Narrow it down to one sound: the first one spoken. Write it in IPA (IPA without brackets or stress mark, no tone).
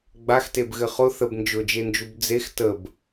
ɡ͡b